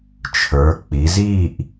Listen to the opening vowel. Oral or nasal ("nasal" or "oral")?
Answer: oral